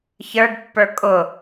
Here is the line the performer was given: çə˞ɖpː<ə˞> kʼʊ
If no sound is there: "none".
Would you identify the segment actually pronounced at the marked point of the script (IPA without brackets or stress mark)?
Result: ə˞